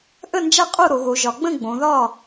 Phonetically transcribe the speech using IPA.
ʔ ə˥˨ n d͡ʒ a˥˨ qʼ o˥˨ ɾ o˨˦ ɣ o˨˦ ʒ ɒ˨˦ ɡ͡b ə̃˥˨ ɡ͡b õ˨˦ ð ɒ˥˨

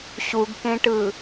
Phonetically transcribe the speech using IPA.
ɕ u ɡ k ẽ ʈ ɯ

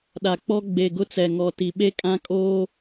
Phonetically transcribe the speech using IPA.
ɗ a˨ k͡p ɔ˦ ɡ͡b e˨ ɡ ʊ˦ t͡s ɛ˨ ŋ ɔ˨ t i˨ ɓ e˦ kʼ ã˦ kʼ oː˦

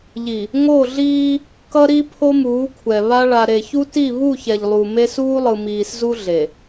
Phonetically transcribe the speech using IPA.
ʎ i˨ | ŋ o˦˨ ɮ iː˦ | k ʌ˦ ɾ i˦ pʰ o˦ m uː˨˦ kʷʰ ɛ˨ β a˦ ɭ a˨ ɾ e˨ ç u˦ t i˦˨ β u˦˨ ç ɛ˨ ʎ lˠ u˨ m e˦ s uː˦ lˠ ɯ˨ m iː˨ s z u˦ ɮ e˨

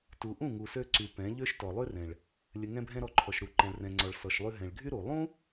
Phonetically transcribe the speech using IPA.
t u˨ ʔ ũ˦˨ ŋ u˨ s ø˧ ǀ y˨ p ɛ̃˨˦ ʎ ø˦ ʃ t ɔ˨ lˠ y˦ r ɛ̃˨ ɭ | lʲ ə˨ ŋ ɛ̃˧ bʱ ɛ̃˧ ɾ ɔ˧ ǃʰ ɔ˨ ʃ ɾ u˨ ǃ ɛ̃˨ ɭ r ɛ̃˨ ŋ͡ǀ ɔ˨ ɭ s ɔ˨ ʃ lˠ y˧ ɦ ɛ̃˨ ɭ ɡʱ y˦ ɾ u˨ lˠ ũ˦

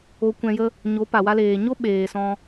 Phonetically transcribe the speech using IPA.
o˧ kʷ ɛ̃˧ j ə˦ | ɲ o˨˦ p a˨ w a˧ l eː˨ ɲ o˦ ɓ eː˨ s ɔ̃˧

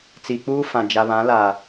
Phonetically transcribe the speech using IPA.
t͡s i˨ k͡p uː˦ f ã˨ d͡ʒ a˨ β ã˨˦ l a˨

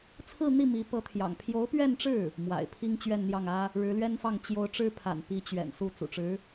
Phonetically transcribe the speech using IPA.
t͡sʰ ɹ̩˥˧ n̪ i˥˩ m i˧˥ p ɤ˧˥ t̪ʰ j ɑ̰˨˩ ŋ pʰ j o˧˥ ʊ̯ p ɥ ɛ˥˧ n ʈ͡ʂ ɻ̩˥˩ | m w a̰˨˩ ɪ̯ pʰ i˥ ŋ t͡ɕ ɥ ɛ˥˧ n n̪ j ɑ˥˩ ŋ ä˥ | ɻ ɻ̩˧˥ l ɥ ɛ˥ n f ɑ˥˩ ŋ t͡ɕ j o˧˥ ʊ̯ ʈ͡ʂ ɻ̩˥ pʰ a̰˨˩ n p i˧˥ t͡ɕ ɥ ɛ̰˨˩ n s u˥˩ t͡s ṵ˨˩ ʈ͡ʂ ɻ̩˧˥

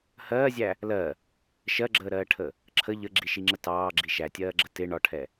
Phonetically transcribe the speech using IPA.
h ɜː zʲ æ | l ɜ | ʃ ɜ ɡ͡ǁ əː ɾ ɜː ʈʰ ə | ǁʰ ə ʎ ə ɡ͡ǁ i ʃ i ŋ͡ǁ ə t ɑː ɡ͡ǁ i ʃ æ tʲ ɜː ɡ͡ǁ ə t ɪ ɳ ɒ ʈʰ ɛ

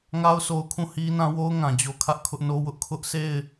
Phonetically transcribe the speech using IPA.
ŋ a˦ ʊ̯ sʰ o˦ ʊ̯ kʰ ũ˦˨ h i˦ n ã˦ w o˦ ʊ̯ ŋ ã˨ d͡ʑ o˦ kʰ ä˦ ʔ kʰ ʊ˦ ʔ n o˦ w ʊ˦ ʔ kʰ ʊ˦ ʔ sʰ e˦˨ ɪ̯

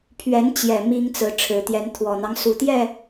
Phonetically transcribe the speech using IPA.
pʰ ɥ ɛ˨˦ n t͡ɕ j ɛ˨˩ m i˦ ŋ t͡s ɹ̩˨˦ ʈ͡ʂʰ ɻ̩˨˦ t̪ j ɛ˨˦ n t̪ʰ w ɔ˨˩ n̪ ɑ˦ ŋ s u˨˩ t̪ j ɛ˥˨

